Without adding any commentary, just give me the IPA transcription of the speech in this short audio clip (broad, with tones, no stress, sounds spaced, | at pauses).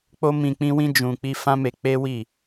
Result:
k͡p o˦ m ĩ˧ k͡p ĩ˦ w ĩ˦ d͡ʒ ũ˧ k͡p i˦ f ã˦ m e˧ k͡p e˦ w i˦˨